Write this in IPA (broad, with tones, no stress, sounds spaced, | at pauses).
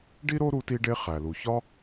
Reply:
ɖ i˥ ɾ o˥ ɾ u˥ t i˥ ɖ e˥ χ æ˩ l u˩ ç ɒ˥